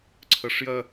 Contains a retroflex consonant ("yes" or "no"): yes